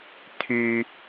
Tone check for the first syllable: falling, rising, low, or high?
high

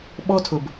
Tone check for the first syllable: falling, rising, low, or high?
high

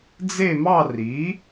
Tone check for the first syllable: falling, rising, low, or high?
falling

